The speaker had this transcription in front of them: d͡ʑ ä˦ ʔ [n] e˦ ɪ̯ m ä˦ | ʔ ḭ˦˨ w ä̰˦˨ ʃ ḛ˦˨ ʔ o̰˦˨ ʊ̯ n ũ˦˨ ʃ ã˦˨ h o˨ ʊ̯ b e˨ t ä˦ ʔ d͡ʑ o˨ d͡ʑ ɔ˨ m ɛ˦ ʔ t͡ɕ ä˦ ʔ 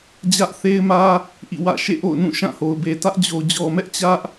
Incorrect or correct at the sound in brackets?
incorrect: θ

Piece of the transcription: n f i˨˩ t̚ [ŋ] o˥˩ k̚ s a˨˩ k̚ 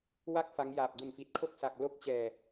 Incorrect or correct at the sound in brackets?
incorrect: kʰ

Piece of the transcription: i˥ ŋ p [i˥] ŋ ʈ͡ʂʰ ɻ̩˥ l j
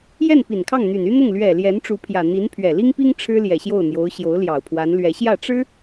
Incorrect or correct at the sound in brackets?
correct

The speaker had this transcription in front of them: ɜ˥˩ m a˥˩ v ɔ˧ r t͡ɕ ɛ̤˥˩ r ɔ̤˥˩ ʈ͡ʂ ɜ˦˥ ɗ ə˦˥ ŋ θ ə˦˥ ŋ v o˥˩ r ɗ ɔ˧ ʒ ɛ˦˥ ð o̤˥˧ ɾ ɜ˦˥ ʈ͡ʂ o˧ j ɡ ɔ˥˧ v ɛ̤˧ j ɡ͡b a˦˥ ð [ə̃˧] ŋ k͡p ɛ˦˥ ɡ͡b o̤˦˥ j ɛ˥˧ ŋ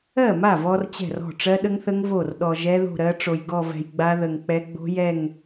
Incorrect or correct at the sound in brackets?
incorrect: ə˧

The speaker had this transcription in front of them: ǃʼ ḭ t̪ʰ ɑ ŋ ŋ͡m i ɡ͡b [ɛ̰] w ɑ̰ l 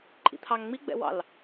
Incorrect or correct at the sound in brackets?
correct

